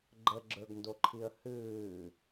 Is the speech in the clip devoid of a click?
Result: no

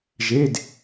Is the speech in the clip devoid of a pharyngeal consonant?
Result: yes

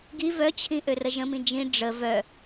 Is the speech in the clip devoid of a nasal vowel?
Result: no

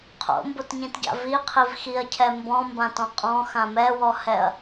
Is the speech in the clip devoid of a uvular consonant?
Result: no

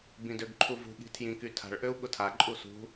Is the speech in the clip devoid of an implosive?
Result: no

